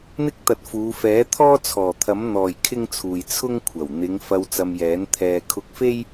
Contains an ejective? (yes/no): no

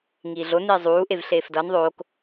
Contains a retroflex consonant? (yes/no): no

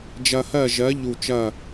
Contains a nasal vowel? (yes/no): no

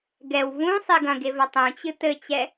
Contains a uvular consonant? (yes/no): no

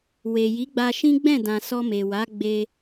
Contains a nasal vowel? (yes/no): yes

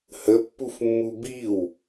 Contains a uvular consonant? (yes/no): no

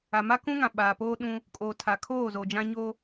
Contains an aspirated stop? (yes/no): yes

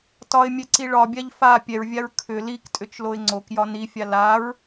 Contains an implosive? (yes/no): no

